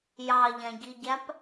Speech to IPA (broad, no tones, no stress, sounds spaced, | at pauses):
j ɑ ʎ æ̃ ɟ i ɟ æ p